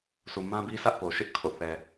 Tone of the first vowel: low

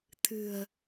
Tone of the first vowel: low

